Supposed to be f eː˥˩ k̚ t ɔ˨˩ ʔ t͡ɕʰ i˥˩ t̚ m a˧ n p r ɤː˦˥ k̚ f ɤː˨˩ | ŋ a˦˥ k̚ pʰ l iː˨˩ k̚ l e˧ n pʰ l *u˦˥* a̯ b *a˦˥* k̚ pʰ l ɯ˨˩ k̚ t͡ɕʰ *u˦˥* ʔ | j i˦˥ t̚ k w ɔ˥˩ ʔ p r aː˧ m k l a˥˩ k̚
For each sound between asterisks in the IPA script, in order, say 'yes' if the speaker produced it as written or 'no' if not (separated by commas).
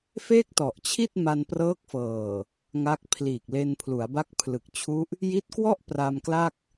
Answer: no, yes, yes